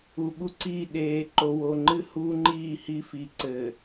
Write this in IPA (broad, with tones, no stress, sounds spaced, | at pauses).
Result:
u˨ ɓ u˦ ǀ iː˦˨ ɗ eː˨ ǃ o˨ w o˨ ŋ͡ǃ ɨ˦ h uː˦ ŋ͡ǃ iː˦˨ h i˦ f i˨ ǀ ɘː˨